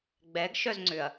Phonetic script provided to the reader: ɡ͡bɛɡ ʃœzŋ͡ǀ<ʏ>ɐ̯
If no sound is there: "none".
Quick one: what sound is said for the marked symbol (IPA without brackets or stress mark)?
ʏ